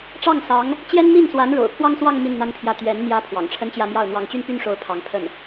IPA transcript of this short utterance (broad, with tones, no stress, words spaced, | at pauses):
ʈ͡ʂɑ˥˩ŋsɑ˧˥ŋ | t͡ɕjɛ˥nmi˥˩nswa˧˥n ɻo̰˨˩ʊ̯pʰwɑ˥ŋswɑ˥˧ŋ mi˥˩nn̪a˥npʰjä˥˩ t̪ɥɛ˧˥n n̪jä˧˥ pʰwɑ̰˨˩ŋʈ͡ʂʰə˥nt͡ɕjä˥˧mjɑ˥˩ʊ̯ n̪wɑ˧˥ŋt͡ɕy˥npy˥nʂo˧˥ʊ̯ pʰɑ˧˥ŋpʰə˥˩n